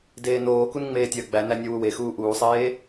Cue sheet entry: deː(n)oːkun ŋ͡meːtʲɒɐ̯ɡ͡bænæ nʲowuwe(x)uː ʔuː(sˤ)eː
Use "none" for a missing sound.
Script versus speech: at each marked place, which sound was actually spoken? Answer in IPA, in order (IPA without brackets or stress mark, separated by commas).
n, x, sˤ